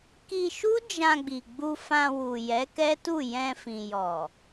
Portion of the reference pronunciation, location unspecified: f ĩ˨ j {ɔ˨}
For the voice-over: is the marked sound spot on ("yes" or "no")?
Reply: yes